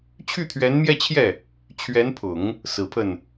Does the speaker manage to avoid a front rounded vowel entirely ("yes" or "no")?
no